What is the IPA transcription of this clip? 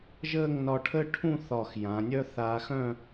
ʒ əː˥˧ ŋ n ɒ˧ ʈʰ ə˥ ʈʰ ũ˥˧ θ ɒ˧˩ x j ã˩˧ nʲ œ˥ θ aː˧ x œ̃˥˧

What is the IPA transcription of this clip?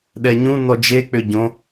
ɗ ɛ ɲ ũ n ɔ d͡ʒ e k͡p ʏ ɟ õ

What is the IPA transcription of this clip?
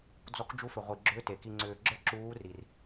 d͡z ɔ˦˥ k d͡ʒ u˦˥ f ʏ˧ ʁʷ i˧ ɡ͡ǁ ʏː˦˥ t e˧ k i˧ ŋ͡ǀ ʏː˧ ɡ͡ǁ ə˞˦˥ ǁ uː˦˥ r i˧ r

